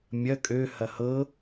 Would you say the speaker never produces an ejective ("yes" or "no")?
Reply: no